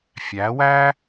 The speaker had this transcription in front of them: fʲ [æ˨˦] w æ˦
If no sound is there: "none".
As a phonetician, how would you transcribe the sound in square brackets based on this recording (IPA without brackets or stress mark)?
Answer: æ˨˦